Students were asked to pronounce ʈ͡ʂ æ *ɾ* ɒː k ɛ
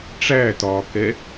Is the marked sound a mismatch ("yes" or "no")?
yes